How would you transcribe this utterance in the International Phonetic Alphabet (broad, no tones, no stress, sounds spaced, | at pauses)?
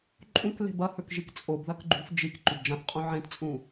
ǃʼ ũ k l e̤ b ɐ h ɵ k ʒ i k t͡sʼ o b ð ɐ k ɡ͡ǃ ṳ f d͡ʒ i k ǃ ʉ b d͡ʒ ã θ qʼ ũ ʕ ẽ t t͡sʼ ũ